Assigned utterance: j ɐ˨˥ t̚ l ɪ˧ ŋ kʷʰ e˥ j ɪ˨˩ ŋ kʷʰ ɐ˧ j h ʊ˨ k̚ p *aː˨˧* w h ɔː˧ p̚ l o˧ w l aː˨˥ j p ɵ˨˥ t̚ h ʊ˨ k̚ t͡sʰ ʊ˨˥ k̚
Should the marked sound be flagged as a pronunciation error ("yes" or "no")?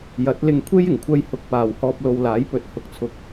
yes